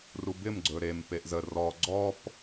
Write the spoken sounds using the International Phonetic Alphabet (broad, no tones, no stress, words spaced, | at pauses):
rubɪm ɡ͡ǀɵɾem peʔzə rɔ ɡ͡ǀɔp